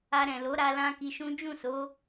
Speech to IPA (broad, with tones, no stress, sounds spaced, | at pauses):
a˧ ɾ ɛ̃˨ l o˨˦ ɾ a˧ l ã˧ k i˧ ʃ ũ˦ d͡ʒ ũ˦˨ s o˨˦